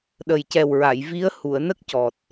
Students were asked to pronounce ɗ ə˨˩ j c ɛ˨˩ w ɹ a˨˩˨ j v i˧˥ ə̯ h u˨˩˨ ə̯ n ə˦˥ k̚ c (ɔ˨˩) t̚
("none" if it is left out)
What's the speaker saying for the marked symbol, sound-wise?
ɔ˨˩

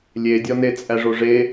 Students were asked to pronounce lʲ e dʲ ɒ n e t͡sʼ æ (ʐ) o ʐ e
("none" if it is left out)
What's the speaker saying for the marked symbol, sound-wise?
ʐ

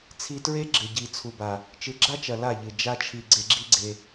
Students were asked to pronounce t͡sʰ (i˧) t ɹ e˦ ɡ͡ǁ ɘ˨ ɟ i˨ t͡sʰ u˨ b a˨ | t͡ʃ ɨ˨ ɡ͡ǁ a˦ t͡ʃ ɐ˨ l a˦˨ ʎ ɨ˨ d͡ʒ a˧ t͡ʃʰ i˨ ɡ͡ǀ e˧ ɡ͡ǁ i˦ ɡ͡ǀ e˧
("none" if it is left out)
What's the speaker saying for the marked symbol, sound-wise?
i˧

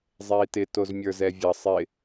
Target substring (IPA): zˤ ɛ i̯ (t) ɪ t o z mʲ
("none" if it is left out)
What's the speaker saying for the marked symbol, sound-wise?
t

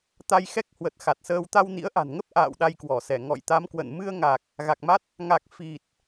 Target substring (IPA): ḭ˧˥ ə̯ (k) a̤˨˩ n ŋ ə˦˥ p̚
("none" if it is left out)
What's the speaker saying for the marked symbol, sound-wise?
ʔ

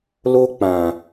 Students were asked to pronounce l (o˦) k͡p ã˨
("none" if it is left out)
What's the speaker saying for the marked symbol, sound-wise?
o˦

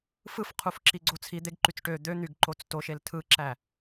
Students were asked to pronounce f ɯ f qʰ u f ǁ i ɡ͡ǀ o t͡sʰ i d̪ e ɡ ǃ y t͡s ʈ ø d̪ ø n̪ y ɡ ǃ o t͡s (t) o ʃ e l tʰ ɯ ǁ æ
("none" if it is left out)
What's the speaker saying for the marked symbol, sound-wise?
t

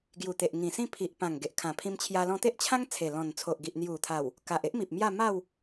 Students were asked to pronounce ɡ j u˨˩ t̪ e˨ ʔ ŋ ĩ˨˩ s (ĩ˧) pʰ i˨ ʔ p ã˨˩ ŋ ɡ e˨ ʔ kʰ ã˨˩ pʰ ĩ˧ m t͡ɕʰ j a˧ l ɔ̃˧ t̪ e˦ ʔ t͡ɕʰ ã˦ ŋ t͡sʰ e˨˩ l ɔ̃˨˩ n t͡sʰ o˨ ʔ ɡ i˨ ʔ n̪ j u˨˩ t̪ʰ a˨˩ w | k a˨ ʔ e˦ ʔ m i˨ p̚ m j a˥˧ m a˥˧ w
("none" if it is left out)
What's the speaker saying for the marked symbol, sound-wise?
ĩ˥˧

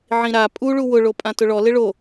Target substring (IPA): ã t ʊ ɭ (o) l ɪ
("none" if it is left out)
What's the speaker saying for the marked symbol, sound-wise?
ɔ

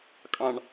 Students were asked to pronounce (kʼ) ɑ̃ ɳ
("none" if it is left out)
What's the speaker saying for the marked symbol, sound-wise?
kʼ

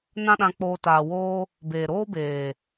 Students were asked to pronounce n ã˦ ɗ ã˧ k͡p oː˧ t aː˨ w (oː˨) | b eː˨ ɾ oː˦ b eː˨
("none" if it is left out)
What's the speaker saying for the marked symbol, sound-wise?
oː˦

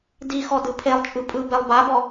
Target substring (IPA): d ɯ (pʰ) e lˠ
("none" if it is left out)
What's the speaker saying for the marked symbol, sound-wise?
pʰ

